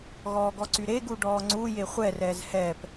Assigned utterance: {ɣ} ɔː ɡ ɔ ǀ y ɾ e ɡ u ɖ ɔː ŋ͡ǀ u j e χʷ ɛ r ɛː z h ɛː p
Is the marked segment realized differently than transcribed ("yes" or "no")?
no